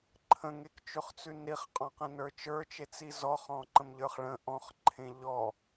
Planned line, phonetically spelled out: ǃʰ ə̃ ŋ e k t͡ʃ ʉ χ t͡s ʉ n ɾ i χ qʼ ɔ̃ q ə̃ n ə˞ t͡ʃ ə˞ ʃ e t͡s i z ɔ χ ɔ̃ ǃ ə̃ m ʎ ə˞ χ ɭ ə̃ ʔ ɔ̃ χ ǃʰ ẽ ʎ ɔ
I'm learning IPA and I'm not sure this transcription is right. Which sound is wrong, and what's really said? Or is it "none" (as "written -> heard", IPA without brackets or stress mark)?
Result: ʃ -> t͡ʃ